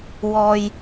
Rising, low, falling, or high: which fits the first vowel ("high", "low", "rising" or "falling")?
low